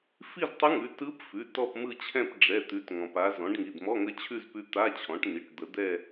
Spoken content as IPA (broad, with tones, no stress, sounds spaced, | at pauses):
f i˥˧ z tˤ ɯ˧˥ ŋ ʉ˩˧˩ t ɯ˧˥ p f ʉ˩˧˩ t ɔ˥˧ p m ɯ˥˧ t͡ɕʰ ɛ̃˥˧ p ɖ͡ʐ ɛ˩˧˩ t̪ ʉ˩˥ t ŋ ɔ̃˩ p a˧˥ z ɔ̃˩˥ ɖ ŋ i˩˧˩ d m ɔ˧˥˧ ŋ ə˧˥ t͡ɕʰ ʉ˥˧ z p ʉ˧˥ t̪ a˧˥˧ t͡ɕʰ ɔ̃˩˥ ʈ n i˩˧˩ ʈ d̪ ə˩˥ d̪ ɛ˥˧